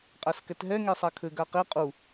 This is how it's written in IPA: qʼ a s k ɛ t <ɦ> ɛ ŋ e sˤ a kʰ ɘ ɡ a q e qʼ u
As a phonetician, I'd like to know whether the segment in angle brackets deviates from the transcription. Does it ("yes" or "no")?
no